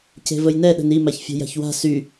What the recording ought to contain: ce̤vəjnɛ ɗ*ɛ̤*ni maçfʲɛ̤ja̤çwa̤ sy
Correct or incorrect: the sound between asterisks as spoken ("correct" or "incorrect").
incorrect